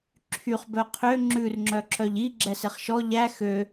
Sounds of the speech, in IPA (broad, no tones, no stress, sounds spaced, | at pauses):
ǁʰ y χ b œ qʰ ø ŋ͡ǁ ʉ r ŋ͡ǁ œ ǁ œ ʎ i ɡ͡ǁ ɛ s e χ ʃ ɔ ʎ æ x ø